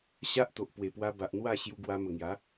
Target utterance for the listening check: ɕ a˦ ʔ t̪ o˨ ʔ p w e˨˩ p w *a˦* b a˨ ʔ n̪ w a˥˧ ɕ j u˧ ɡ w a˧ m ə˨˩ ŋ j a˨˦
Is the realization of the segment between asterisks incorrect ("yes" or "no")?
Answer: yes